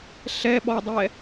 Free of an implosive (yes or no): no